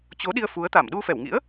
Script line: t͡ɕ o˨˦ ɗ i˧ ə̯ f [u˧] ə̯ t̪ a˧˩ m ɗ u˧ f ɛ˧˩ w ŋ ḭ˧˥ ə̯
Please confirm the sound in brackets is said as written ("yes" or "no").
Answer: no